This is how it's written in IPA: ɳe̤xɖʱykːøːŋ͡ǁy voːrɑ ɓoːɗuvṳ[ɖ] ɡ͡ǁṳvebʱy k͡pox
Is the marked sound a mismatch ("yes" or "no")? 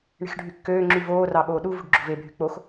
no